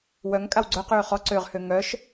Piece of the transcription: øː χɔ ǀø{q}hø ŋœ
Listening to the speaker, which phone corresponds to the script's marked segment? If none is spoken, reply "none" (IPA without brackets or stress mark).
ʁ